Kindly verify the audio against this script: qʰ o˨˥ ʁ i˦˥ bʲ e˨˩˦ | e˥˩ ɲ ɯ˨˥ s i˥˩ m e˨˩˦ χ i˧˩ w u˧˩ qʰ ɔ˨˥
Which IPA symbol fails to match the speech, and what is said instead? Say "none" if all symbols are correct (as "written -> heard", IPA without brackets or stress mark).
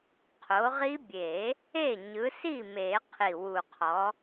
χ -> qʰ